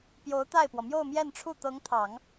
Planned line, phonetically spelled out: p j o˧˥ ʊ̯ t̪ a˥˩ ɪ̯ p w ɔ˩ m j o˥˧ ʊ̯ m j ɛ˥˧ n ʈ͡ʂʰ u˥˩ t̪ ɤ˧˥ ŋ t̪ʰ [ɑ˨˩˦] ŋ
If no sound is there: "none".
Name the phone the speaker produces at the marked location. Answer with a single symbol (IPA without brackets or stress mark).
ɑ˨˩˦